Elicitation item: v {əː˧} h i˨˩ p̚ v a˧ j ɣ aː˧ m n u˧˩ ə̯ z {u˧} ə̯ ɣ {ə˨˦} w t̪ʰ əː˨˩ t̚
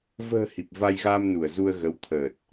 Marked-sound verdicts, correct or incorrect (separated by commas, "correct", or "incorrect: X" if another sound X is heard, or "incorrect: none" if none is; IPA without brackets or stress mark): incorrect: ə̤ː˨˩, correct, correct